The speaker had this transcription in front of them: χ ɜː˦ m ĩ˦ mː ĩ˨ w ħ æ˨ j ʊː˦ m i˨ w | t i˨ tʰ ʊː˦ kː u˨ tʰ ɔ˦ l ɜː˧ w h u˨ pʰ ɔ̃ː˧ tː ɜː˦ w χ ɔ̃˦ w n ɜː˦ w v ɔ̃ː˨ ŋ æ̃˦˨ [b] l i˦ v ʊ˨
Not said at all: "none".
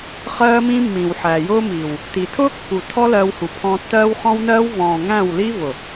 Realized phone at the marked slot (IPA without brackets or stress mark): w